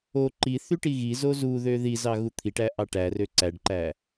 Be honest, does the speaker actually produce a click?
yes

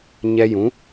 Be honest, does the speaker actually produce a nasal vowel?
yes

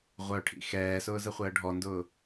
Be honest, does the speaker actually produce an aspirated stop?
yes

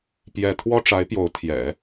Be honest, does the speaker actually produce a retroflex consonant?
yes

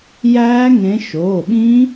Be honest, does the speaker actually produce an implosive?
yes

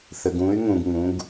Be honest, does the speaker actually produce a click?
no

